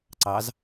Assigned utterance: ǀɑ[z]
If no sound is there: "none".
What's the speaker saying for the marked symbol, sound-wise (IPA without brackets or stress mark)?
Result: z